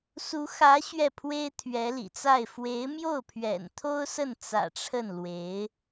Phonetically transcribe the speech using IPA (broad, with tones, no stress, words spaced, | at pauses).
su˧˥xä˧˥ ɕɥɛ˥˩pʰwe˥ɪ̯ t̪ʰɥɛ˧˥lḭ˨˩t͡sa˥˩ɪ̯ fwe˧˥ɪ̯mjo˥˩ʊ̯pʰɥɛ̰˨˩nt̪ʰo˥ʊ̯ sə˥˩n t͡sä̰˨˩ ʈ͡ʂʰə˥˩n lwe˧˥ɪ̯